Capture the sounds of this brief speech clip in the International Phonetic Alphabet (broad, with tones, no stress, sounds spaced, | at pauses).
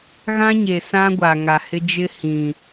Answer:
ɣ ã˦ ɲ e˨ s ã˦ ɡʷ a˨ ŋ a˨ h ɪ˦ d͡ʒ ɪ˦ h ĩ˨